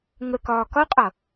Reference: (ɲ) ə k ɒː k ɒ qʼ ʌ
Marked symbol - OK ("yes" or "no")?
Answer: no